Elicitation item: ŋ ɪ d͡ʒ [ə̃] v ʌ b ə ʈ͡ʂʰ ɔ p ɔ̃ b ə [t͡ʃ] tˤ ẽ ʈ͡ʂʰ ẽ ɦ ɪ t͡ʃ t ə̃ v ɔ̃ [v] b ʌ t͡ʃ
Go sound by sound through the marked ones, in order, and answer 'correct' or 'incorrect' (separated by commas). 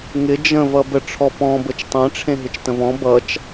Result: correct, correct, incorrect